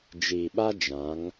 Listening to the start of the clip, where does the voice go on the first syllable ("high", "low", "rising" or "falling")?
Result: low